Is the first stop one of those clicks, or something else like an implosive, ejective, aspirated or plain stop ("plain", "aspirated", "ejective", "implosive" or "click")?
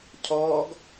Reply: aspirated